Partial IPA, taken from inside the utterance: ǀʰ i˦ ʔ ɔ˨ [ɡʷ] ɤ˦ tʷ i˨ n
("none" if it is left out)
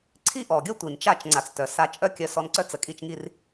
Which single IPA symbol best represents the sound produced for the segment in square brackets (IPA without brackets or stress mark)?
ɡʲ